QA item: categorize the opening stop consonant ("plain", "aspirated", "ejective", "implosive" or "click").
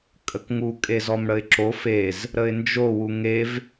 ejective